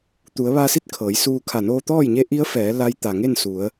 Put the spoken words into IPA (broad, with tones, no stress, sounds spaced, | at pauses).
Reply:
t̪ u˩˧ ə̯ ʋ a˧ s i˥˨ t̚ kʰ ɤː˩˧ j s uː˧ kʰ a˧˩ n oː˧ t̪ ɔː˥˨ j ɲ e˧˥ ʔ i˧˥ ə̯ f ɛː˩˧ l a˧˥ j t̪ a˩ ŋ e˥˨ n s u˩˧ ə̯